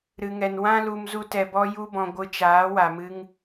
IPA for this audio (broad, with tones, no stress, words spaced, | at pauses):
ɾɨ˧ŋɛ˧n wã˦lu˧m zu˦tɛ˧ bɔ˦ju˦bɔ̃˧ ɡʷɨ˧t͡ʃaː˨˦wa˨ mɨ˦ŋ